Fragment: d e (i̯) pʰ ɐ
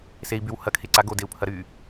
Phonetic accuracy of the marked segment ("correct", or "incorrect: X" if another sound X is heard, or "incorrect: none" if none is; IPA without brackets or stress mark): incorrect: u̯